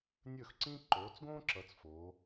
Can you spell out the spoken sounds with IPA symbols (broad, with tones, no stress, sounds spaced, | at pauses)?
nʲ ɵː˥˩ x ǀ ĩː˥ ǃ oː˨˦ t͡s ɡ õː˥ ǁ ʌ˨˦ t͡s f oː˨˦